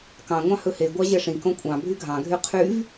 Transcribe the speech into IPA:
k ɑ̃ ŋʷ ɑ̃ h ɵ h e ɡʷ ɑ ʑ ɛ ʂ ĩ k õ kʷʼ ɑ̃ bʱ y ɡʱ ɑ̃ ɡʱ y qʰ y v

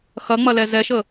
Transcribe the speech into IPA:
x ɐ ŋ͡m ɐ l ɛ z ɛ ʃ ə

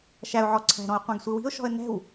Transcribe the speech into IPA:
ʃ æ ʊ̯ ʕ ɔ ǀʰ æ̤ ɾ ɔ̃ ə̯ qʷ ɛ̃ ɡ sʷ i w i̤ ʊ̯ ʃ ɔ̤ ə̯ n ɛ̤ w

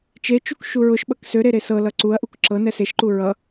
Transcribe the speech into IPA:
t͡ʃ e t͡ʃ u k ʃ u ɹ ʊ ʃ ɓ ʌ k s ø ɾ e ɾ e s ɤ l ʌ ǀ u ɐ̯ ʔ u k ǁ ɤ n ɛ s e ʃ ǃ u ɹ ʌ

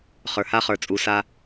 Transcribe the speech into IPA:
χ ə˞˨ h a˦ χ ə˞˨ t͡sʼ u˨ s a˦

